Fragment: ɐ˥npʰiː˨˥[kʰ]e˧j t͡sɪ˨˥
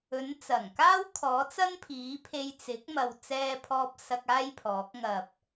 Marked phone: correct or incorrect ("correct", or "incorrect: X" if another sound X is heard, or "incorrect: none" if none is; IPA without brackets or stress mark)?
incorrect: pʰ